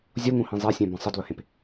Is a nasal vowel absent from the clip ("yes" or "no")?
no